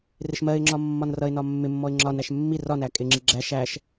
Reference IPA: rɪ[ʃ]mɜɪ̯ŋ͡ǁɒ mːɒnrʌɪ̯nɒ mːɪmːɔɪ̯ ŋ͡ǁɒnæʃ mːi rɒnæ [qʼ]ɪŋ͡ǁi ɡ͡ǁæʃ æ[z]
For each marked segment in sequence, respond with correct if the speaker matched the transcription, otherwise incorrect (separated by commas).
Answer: correct, incorrect, incorrect